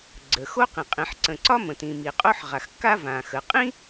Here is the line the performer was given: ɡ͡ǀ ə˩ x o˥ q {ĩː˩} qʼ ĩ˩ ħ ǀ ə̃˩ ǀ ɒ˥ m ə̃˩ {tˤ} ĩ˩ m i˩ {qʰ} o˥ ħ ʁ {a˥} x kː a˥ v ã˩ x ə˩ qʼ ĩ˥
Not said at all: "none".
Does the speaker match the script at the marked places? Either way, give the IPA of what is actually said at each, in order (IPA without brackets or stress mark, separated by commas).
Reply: ĩ˩, t, qʼ, a˩